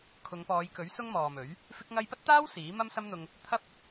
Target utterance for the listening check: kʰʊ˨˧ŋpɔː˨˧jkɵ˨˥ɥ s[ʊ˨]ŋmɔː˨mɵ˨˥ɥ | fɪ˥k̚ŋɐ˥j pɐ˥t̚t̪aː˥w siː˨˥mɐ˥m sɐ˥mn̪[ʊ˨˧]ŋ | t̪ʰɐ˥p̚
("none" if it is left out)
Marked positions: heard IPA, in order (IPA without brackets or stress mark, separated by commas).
ʊ˥, ʊ˧